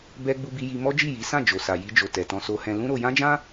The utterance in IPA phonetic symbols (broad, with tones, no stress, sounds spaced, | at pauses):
b ɛ˧ ɡ͡b u˧ b i˧ j i˧ m ɔ˦ d͡ʒ i˦˨ j i˨˦ s ã˦˨ d͡ʒ o˨ s a˨ j i˧ d͡ʒ o˨ t ɛ˨ t ɔ̃˧ s o˧ h ɛ̃˧ l ũ˦ ɾ o˧ j ã˦ d͡ʒ ã˦